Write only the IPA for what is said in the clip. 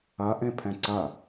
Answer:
ɐʔẽpʰɛ̃ ǀɐ

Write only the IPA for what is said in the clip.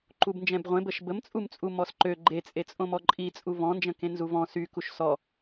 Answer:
ǃubnd͡ʒɛ̃bʁʷẽbəʃ bəmt͡sʼumt͡sʼu mɔsǃø ɡ͡ǃet͡sʼet͡sʼõmɔ ǃʼi t͡sʼuvɔ̃nd͡ʒə̃kẽ nzuvɔ̃ sykuʃ sɔ

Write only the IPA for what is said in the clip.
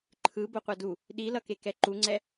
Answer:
ǃʰɯ boqʷadu | ɗilʌkekɛ ǃuŋ͡ǀɛ

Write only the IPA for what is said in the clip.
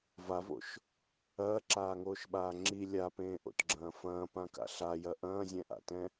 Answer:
vavo̰ʃ | ɐːǁaːŋoːʃɓaː ŋ͡ǁi lʲapẽːʔo̰tɡ͡ǁɐ̃ː fɐ̃ːpãka̰ ɬajɐ ʔɐ̃ːzʲɛ̃ʔa̰tɛ̃

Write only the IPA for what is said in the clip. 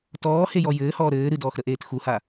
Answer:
tɔːhejɔ jɘːhɔː ɾɘː ɾɨdɔːxɾəʔeːt xuha

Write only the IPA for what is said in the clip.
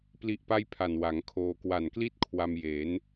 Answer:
pli˦˥ʔpa˥˩jpʰa˨˩n wa˩˦ŋkʰoː˧ kwa˨˩nkli˥˩t̚ kʰwa˧mje˩˦n

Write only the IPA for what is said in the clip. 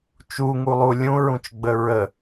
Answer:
t͡ʃuŋulˠu lʲũɹũt͡ʃɡ͡bə ɹə

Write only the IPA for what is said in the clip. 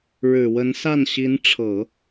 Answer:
ɻɻ̩˨˩wə˧˥n sa˥˩nɕi˧˥nʈ͡ʂʰɤ˨˩˦

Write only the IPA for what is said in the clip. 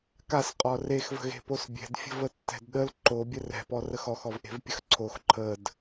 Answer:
kasqʼɔ rexvə̤ɣe̤pos bʲɛ̤dfʲə̤vətːɛ̤d ɗəl ǃobʲə rɛ̤pɔrəx ɔxɔvʔe̤vpʲəx ǀʰox ǃʰəd

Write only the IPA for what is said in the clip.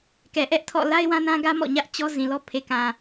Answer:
kɛ˨ʔɛ˦ʔtʰɔ̰˦˨ la˦ɪ̯wã˦nã˦ɡä˦ mɔ̰˦˨ɲä˦ʔ t͡ɕɔ˦ zĩ˨lɔ˦ pʰe˨kã˨

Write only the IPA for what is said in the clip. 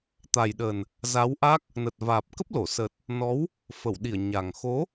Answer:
t̪a˨˩jɗə˨˩n | za˨˦wʔa˦˥k̚ | nə˨˩t̚vaː˨˩p̚kə˦˥p̚lo˧˩ sə˨˩t̚ | nɔ˨˦w | fə˧˩wɗi˧˩ə̯ ɲa˨˩ŋ xo˨˦

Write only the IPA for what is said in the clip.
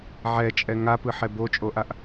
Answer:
ʕɛt͡ʃʼɛ ŋapɯħɛ bot͡ʃʼoʔaʔ

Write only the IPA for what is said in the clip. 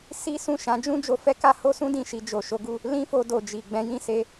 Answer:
si˦ sũ˦˨ʃã˨˦d͡ʒũ˦ d͡ʒo˧fɛ˦ka˦ ho˦sũ˦ dĩ˦˨ʃi˧ d͡ʒo˨ʃo˨˦ɡu˦˨ | lĩ˦fo˧ do˨d͡ʒi˨ ɡ͡bɛ̃˨˦jĩ˦˨se˧

